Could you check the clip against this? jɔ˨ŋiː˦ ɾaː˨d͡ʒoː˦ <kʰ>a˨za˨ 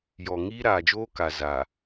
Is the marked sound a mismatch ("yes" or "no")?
yes